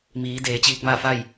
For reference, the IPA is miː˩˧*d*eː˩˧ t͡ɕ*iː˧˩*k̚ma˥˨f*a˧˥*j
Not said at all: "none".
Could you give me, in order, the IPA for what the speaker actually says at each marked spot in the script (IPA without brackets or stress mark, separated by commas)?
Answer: d, iː˧, a˥˨